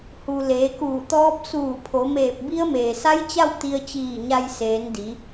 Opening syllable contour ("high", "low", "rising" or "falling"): low